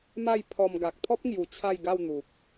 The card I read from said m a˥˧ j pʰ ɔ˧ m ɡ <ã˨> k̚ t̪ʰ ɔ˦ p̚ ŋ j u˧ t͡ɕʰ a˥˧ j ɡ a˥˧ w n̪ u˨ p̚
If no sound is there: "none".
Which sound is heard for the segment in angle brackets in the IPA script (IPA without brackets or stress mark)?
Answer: a˨